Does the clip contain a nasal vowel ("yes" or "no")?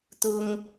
no